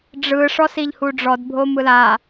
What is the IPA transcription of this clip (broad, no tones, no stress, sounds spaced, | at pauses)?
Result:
ɖ͡ʐ ɯ ʂ ɔ s i ʎ h u ɖ͡ʐ ɔ d bʱ o m ɯ l a